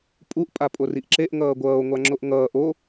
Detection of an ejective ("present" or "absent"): present